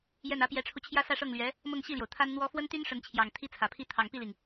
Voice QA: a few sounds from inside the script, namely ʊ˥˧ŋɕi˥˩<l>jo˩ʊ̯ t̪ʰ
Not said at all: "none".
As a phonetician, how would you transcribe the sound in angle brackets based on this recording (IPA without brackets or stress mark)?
l